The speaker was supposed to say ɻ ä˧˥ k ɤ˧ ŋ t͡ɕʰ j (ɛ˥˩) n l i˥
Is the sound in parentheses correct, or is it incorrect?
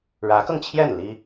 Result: correct